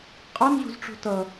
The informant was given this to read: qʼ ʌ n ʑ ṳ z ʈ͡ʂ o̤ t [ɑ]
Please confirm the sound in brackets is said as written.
no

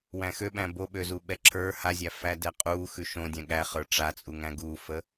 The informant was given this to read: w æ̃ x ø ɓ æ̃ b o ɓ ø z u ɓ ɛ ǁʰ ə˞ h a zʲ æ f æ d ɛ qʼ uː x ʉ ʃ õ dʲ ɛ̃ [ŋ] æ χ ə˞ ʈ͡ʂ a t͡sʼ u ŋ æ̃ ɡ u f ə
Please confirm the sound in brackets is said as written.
no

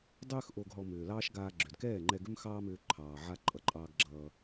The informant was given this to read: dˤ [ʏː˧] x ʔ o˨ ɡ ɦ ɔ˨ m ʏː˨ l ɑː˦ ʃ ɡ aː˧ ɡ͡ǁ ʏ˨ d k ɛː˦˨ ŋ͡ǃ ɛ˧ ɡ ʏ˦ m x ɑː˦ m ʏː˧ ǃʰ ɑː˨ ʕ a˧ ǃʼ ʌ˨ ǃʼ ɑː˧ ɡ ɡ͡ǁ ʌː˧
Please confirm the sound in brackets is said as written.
yes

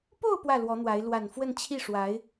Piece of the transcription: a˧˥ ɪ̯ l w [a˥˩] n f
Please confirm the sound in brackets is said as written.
no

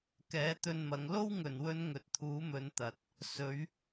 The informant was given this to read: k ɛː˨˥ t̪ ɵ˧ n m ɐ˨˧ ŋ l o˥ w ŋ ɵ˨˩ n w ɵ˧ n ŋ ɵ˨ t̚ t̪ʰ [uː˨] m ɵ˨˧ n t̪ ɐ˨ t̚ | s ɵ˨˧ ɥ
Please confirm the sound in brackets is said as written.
no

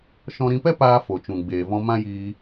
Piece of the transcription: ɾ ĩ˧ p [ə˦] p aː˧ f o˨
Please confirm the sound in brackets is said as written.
no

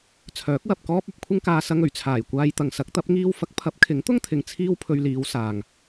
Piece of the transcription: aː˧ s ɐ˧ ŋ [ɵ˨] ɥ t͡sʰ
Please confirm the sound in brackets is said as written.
no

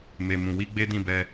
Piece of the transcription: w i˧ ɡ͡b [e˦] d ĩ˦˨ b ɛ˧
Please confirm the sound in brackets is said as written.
yes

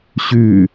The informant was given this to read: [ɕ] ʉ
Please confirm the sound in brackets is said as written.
yes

